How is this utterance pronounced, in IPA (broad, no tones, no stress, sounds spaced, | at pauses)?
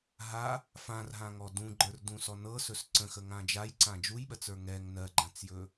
ɦ a | f ã r ɦ ã ŋ ɔ d ũ ɡ͡ǃ ə˞ r d ũ s ɔ n ɤ s ɵ s ǀ ə̃ x ə ŋ ã d͡ʒ a j ǀ ã d͡ʒ u j ɓ ɜ t͡s ə˞ ŋ ɛ ŋ n ɜ ɡ͡ǃ ã t͡s j ɵ